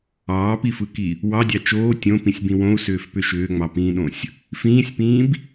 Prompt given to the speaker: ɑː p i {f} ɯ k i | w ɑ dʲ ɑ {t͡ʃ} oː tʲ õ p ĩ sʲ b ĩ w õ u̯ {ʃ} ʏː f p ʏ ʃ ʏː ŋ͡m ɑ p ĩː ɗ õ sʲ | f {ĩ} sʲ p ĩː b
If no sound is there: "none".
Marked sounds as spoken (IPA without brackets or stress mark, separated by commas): f, t͡ʃ, s, ĩː